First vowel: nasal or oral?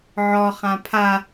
oral